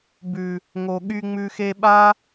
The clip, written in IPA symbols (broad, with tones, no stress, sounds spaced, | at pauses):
b ʉ˨ | ŋ o˨ ɠ y˧ ŋ͡m ʉ˧ x e˧ ɓ a˦